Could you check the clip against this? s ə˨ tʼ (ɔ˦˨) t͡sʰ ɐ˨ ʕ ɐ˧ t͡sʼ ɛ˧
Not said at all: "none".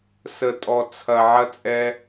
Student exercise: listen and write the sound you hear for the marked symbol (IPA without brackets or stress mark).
ɔ˨